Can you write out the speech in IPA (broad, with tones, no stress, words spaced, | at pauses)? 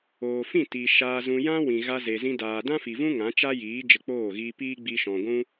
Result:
oː˨fĩ˦˨tiː˨ ʃaː˧zũ˧ jã˦ wĩ˨ɣa˧ze˨zĩ˧ daː˨dã˦fi˨vũ˦ ŋã˨˦t͡ʃa˦jiː˨˦ d͡ʒə˧k͡poː˦˨ɣiː˧piː˦ ɡ͡bi˧ʃɔ̃˨ɡʷũ˦